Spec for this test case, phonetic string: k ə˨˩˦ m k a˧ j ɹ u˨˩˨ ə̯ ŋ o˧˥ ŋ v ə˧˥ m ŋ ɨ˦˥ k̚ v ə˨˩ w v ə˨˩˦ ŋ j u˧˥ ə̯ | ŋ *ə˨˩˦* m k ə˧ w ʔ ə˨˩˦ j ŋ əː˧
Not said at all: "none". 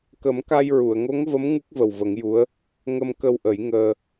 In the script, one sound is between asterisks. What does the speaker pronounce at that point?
ə˧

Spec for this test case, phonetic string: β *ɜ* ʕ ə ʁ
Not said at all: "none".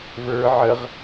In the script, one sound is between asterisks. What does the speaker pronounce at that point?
ə˞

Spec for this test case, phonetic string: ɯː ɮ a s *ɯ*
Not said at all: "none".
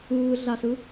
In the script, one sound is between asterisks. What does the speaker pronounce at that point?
ɯ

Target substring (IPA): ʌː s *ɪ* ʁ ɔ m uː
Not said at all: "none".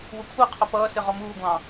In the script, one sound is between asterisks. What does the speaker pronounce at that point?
ɪ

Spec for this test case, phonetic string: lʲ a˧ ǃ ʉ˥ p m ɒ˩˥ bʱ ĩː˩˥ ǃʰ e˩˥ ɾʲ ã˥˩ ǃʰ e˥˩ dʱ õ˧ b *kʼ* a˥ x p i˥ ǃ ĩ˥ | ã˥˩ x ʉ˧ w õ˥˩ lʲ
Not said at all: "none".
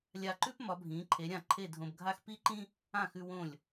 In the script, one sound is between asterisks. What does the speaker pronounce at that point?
ɡʱ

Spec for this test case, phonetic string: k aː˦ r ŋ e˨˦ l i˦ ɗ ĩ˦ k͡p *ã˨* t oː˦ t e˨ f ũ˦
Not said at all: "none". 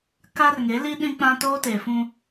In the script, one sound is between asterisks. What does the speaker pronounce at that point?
ã˦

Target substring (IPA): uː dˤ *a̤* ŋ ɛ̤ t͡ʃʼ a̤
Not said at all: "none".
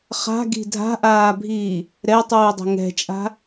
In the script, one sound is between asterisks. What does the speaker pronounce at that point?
ə̤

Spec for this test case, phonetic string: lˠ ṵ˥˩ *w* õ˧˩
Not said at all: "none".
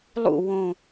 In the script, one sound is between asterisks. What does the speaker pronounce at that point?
w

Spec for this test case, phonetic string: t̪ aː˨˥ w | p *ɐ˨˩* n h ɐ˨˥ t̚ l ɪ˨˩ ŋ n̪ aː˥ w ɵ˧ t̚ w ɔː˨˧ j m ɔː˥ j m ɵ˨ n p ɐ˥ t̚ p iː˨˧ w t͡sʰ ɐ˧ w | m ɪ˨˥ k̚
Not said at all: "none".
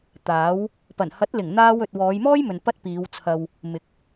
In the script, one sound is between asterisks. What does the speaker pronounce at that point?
ɐ˨˩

